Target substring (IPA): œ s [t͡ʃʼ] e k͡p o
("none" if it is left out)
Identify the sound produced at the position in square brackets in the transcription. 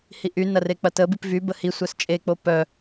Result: t͡ʃʼ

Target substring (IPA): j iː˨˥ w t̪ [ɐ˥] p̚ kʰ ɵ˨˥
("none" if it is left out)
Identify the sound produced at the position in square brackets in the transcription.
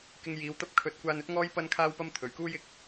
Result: ɐ˥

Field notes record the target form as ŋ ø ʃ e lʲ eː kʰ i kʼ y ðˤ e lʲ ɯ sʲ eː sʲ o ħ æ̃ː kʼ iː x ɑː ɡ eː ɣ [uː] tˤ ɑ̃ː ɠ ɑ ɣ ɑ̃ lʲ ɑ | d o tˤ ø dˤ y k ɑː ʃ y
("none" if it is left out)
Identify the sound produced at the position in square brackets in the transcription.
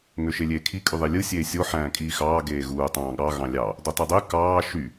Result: uː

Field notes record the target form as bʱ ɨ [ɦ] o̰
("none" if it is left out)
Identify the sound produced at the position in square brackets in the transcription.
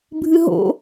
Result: ɦ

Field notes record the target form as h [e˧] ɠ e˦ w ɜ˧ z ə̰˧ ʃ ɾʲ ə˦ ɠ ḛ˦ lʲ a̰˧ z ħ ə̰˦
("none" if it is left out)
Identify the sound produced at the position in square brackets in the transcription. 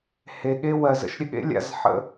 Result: e˧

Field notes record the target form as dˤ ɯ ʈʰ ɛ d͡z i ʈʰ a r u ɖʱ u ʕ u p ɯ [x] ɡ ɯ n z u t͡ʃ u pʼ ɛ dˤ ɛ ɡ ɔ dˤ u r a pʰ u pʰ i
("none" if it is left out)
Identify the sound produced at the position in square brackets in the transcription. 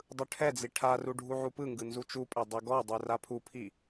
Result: ŋ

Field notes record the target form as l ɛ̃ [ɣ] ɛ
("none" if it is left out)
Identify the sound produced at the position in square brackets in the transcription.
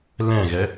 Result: ɣ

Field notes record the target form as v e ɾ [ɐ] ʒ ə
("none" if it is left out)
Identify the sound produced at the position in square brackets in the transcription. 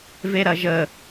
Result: ɐ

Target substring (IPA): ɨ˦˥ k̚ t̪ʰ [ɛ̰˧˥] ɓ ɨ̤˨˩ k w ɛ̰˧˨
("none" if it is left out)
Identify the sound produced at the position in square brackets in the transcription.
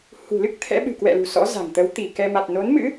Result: ɛ̰˧˥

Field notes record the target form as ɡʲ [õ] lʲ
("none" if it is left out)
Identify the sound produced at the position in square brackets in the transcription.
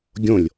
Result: õ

